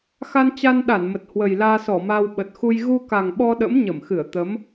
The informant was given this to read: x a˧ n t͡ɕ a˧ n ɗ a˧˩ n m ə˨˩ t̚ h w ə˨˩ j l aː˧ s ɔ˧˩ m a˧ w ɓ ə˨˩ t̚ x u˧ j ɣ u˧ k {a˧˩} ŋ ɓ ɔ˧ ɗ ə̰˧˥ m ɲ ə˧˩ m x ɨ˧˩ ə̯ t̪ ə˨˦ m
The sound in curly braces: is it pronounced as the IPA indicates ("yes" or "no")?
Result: no